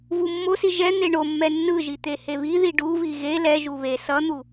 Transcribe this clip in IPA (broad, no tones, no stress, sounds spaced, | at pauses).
v u mː o s i ʒ ɛ n̪ e ɳ o mː ɛ nː ɯ ʒ i t̪ e h e β i ð i ɖ u v i ɣ e l ɛ ʒ u β e s ʌ n̪ u